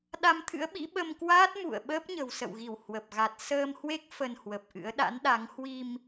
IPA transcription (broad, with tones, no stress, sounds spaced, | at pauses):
ɗ a˧ m t̪ʰ ɨ̰˧˥ ə̯ ɓ ḭ˧˥ ɓ ə˧ m k w aː˦˥ t̚ m ṵ˧˨ ə̯ ɓ əː˦˥ p̚ ɲ ə̤˨˩ w s ə̰˧˨ w ɣ i˧˩ w h w ə˨˩ p̚ ɣ a˨˩ t̚ s əː˧ m h w e˦˥ k̚ f ə˧ n h w ə˨˩ p̚ ʔ ɨ̰˧˥ ə̯ ɗ a̰˧˥ n ɗ a˨˦ ŋ h w i˧ m